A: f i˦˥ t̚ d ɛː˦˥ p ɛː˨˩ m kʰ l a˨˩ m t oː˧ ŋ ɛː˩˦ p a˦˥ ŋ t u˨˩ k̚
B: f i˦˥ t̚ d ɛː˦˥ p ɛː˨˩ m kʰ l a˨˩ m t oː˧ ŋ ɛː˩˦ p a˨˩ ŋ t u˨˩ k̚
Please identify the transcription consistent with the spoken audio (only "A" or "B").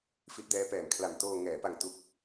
B